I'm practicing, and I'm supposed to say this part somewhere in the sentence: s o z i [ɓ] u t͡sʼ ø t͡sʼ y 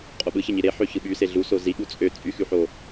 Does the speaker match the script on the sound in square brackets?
no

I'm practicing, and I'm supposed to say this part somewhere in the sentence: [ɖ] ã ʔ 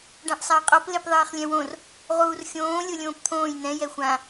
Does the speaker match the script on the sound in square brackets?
yes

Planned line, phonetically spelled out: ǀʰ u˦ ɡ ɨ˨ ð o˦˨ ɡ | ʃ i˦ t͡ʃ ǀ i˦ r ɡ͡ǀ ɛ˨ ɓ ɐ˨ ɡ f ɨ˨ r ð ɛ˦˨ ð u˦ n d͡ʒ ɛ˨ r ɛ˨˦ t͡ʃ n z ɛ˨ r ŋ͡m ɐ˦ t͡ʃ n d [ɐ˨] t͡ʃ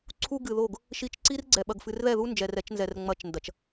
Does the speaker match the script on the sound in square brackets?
yes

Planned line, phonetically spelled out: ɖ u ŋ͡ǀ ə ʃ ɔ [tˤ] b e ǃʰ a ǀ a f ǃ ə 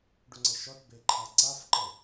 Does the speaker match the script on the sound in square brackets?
no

